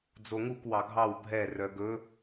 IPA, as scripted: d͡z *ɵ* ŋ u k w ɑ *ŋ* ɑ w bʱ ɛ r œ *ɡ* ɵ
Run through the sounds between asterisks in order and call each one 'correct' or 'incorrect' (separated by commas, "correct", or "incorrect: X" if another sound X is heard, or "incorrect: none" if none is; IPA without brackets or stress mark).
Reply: incorrect: o, incorrect: ɡʱ, correct